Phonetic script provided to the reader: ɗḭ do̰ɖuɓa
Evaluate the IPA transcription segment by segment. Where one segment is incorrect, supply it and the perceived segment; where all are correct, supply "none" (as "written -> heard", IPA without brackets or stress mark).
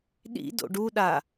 ɓ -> ɗ